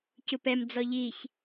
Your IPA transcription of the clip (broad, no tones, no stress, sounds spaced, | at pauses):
c u p ɛ m d͡z ɔ ʎ i ç